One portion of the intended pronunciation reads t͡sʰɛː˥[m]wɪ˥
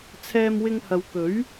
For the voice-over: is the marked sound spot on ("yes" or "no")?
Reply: yes